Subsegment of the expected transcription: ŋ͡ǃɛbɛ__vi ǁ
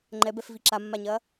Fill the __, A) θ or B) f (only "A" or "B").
B